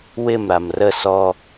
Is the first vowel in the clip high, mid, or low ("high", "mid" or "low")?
high